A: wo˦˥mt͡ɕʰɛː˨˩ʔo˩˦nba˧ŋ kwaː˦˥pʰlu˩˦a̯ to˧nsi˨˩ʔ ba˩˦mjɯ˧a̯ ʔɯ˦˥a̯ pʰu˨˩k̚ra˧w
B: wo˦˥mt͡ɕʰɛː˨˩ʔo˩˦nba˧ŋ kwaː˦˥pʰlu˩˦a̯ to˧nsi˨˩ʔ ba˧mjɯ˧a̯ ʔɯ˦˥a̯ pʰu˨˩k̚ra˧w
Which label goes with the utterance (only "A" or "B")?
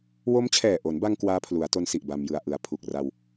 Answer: B